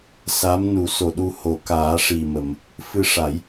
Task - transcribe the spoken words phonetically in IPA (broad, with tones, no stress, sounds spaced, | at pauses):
s a˧˥ m n u˨˩˦ s o˨˩ ɗ u˧ h o˨˩˨ k aː˨˩˦ ʂ i˨˩ m ə˨˩˨ m | f ɨ˧ ʂ a˨˩˦ j